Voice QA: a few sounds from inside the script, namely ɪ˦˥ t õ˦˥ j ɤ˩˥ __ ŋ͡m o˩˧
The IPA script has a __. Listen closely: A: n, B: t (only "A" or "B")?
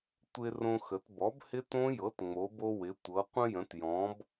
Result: B